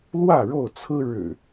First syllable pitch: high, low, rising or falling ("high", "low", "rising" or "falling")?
falling